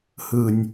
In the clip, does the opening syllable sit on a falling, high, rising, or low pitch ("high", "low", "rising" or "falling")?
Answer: low